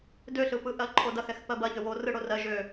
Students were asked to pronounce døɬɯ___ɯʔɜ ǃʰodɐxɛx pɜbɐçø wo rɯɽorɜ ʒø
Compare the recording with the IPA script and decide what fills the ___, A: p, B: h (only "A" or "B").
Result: A